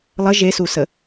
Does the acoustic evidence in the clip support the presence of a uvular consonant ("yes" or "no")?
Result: no